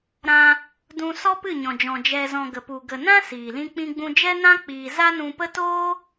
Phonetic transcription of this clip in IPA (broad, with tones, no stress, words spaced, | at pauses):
ɾã˧ | dũ˧sɔ˦pɨ˦˨ ɲɔ̃˨d͡ʒɔ̃˨ d͡ʒɛ˨zɔ̃˨ ɡə˨pu˨ ɡə˨nã˦ siː˨lĩ˦k͡pĩ˦ɡ͡bũ˦ d͡ʒɛ˦nã˦k͡piː˨ za˦nũ˧pə˦ toː˦